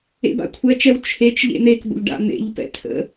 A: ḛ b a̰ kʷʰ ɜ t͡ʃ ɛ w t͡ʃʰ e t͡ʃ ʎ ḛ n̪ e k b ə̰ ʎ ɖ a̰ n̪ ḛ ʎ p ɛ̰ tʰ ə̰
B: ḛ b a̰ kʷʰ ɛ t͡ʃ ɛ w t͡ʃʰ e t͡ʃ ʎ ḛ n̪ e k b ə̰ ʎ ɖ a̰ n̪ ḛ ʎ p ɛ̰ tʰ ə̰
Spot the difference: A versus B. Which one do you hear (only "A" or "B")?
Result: B